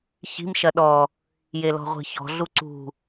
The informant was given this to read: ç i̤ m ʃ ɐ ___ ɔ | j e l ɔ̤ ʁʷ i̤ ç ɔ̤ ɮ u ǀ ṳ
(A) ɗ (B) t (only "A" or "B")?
A